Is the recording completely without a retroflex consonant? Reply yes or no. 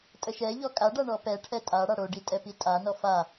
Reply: no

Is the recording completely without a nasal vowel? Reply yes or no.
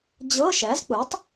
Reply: yes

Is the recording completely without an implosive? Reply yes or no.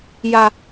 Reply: yes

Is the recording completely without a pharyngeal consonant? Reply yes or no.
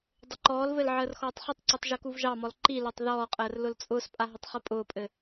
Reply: no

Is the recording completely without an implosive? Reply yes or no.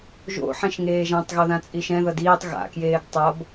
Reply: yes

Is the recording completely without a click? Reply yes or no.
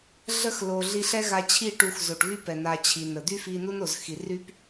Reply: yes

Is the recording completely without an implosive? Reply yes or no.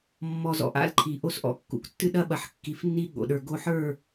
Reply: no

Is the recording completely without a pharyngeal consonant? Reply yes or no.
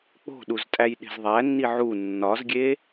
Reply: no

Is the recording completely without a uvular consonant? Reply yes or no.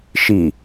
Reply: yes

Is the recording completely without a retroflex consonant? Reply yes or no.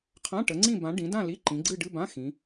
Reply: no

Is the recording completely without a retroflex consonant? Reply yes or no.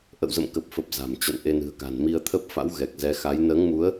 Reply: yes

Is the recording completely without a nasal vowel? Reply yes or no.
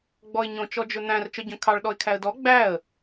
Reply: no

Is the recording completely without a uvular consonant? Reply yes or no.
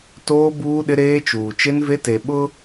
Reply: yes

